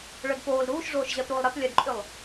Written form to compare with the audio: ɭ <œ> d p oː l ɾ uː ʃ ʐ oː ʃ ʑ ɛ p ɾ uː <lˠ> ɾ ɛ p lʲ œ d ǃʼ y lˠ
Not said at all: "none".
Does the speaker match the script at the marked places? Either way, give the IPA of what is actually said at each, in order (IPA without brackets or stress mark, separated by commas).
œ, lˠ